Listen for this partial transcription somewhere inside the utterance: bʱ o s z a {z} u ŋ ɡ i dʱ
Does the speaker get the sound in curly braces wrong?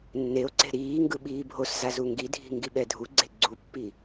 no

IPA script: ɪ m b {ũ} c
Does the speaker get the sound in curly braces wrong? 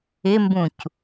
no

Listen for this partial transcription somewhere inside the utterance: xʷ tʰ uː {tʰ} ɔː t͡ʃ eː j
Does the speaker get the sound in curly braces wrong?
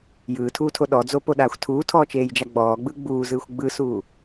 no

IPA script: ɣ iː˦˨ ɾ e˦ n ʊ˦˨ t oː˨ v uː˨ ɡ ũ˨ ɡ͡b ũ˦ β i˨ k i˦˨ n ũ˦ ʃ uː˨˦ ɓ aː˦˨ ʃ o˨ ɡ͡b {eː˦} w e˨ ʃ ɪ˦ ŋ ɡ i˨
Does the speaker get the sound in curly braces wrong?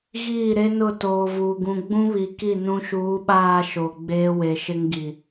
no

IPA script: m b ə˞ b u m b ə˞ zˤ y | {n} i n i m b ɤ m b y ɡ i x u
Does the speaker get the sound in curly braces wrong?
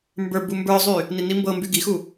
no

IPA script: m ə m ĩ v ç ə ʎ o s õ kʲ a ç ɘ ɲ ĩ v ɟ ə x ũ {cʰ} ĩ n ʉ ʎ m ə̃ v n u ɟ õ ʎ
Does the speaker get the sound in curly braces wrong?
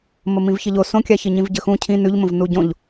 no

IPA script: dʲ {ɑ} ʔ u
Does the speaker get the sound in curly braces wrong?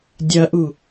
yes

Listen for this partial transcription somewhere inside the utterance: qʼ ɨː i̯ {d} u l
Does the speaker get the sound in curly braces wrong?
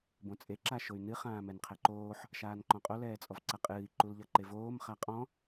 yes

